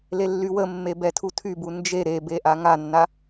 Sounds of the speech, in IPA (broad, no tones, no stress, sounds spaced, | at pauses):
l e lː y w ə mː e b ɛ tʰ u tʰ y b u n d͡ʒ e ɾ e b e ʔ a ŋ a nː a